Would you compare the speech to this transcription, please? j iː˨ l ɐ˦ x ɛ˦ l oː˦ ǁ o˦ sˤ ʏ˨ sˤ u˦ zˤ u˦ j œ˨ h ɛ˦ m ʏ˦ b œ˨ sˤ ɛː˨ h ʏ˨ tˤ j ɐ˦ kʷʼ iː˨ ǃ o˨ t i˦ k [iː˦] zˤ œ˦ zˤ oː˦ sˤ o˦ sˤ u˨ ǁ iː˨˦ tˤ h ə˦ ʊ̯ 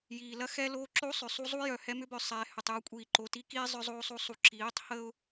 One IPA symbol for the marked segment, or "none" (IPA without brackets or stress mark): iː˦